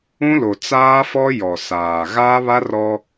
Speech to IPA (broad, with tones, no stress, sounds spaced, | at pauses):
ũ˦ l o˨ t͡s aː˦ f ɔ˦ j ɔ˨ s aː˨ ɣ aː˦ β a˦ r ɔ˦